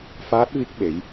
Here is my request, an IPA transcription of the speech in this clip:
f aː˦˥ t̚ v i˦˥ k̚ ɓ e˨˦ j

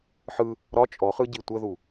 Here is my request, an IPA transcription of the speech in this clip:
ħ ɯ | ɾ ɒ t͡ʃʼ ɔ χ ɯ ɟ i tʷ ə ð u

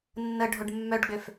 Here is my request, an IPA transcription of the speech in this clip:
nː ə ɖʱ o ɖ mː œ ɖ ɡ͡b ʏ f

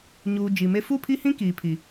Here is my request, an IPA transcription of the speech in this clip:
ɲ uː˨ d͡ʒ i˨ m e˦ f u˦˨ pʰ i˦ h ĩ˦ k iː˨ pʰ i˨

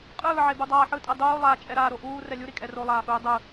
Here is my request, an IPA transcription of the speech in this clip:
qʼ ɯː ʕ e b u dˤ aː ħ ɯ tʼ ɛ dˤ uː lˠ aː t͡ʃʼ ɛ ɾ aː ɾ o ʔ uː r ɛ lʲ u ɾ i kʼ ɛ r o lˠ aː x uː dˤ ɯ

